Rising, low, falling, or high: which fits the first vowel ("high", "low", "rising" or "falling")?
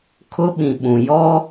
high